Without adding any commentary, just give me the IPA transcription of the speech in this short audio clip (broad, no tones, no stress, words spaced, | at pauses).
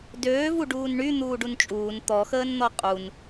døːvu ɖuːnɳy n̪uːɖunt͡ʃʼuːn t̪ɔxəːnn̪ɔ qʼun